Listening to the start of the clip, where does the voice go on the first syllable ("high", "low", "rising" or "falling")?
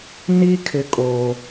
high